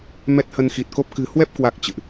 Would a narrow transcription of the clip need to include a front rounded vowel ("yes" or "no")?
no